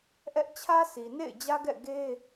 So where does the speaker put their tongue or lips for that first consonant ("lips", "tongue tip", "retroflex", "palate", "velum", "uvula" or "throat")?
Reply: throat